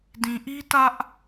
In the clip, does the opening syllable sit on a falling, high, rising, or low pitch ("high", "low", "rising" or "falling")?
low